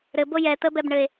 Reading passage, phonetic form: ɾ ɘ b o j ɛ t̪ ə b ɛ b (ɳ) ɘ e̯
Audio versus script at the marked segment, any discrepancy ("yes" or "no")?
no